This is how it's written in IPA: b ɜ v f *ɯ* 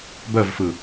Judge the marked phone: correct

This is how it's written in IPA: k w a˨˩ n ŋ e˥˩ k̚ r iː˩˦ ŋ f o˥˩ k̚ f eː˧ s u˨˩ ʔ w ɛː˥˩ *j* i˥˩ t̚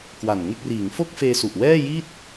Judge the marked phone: correct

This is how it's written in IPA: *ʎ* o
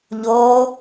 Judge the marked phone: correct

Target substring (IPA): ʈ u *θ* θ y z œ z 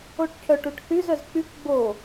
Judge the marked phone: incorrect: ʈ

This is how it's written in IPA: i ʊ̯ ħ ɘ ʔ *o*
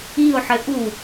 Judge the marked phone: incorrect: u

